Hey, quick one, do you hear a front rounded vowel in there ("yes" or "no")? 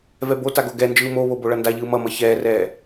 no